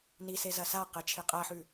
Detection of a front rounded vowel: absent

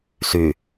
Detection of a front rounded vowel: present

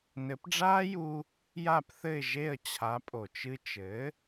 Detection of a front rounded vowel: absent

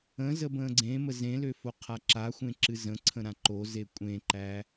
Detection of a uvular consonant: present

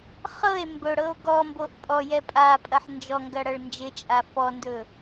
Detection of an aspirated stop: absent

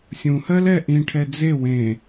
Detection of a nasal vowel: present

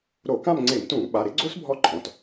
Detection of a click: present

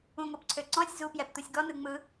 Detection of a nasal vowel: present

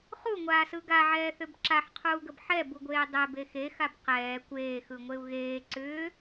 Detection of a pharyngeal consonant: present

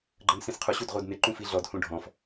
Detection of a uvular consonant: present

